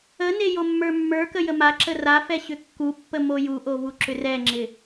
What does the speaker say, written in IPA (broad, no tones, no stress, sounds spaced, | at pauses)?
ə n e j o mː ə˞ mː ə˞ k ə j ə m a ǁ ə r a f ɛ ɕ ʏ kː u pː ə m o j u ʔ o v u ǁ ʏ r ɛ ŋ͡ǁ ɪ